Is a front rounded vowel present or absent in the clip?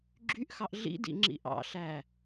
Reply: present